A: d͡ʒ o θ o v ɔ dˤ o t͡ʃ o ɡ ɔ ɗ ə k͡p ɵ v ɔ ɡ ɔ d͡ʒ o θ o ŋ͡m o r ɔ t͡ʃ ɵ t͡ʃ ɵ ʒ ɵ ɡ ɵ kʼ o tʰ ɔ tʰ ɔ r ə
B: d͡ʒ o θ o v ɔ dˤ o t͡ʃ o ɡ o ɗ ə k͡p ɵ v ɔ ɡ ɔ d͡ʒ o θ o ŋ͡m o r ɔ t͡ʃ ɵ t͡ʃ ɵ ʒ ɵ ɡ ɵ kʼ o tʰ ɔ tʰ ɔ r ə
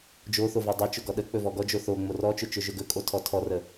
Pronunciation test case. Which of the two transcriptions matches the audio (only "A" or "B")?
A